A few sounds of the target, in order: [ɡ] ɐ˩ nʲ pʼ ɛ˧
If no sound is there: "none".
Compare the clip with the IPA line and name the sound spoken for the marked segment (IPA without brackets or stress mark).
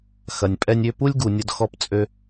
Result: x